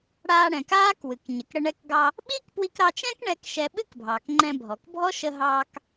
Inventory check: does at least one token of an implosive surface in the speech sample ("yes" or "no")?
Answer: yes